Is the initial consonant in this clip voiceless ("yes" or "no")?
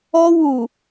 no